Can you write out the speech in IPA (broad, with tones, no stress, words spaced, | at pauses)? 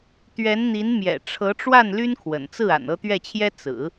t̪ɥɛ˧˥nn̪i˧˥nmjɛ̰˨˩ ʈ͡ʂʰɤ˧˥ʈ͡ʂwa˥˩n ly˥nkʰwə̰˨˩nt͡sɹ̩˥˩ a̰˨˩nɤ˥˧t̪ɥɛ˥˩t͡ɕʰjɛ˥ t͡sɹ̩˨˩˦